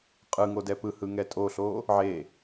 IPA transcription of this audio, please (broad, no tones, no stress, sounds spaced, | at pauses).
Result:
qʼ ɯ ŋ o d ɛ p ɯ h ɯ ŋ ɛ tʼ o ɬ o | ʕ e